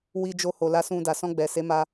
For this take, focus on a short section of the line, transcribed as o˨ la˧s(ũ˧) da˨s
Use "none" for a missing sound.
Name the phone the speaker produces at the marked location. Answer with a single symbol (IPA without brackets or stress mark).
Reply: ũ˧